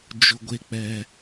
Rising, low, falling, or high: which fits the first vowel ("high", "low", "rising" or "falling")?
low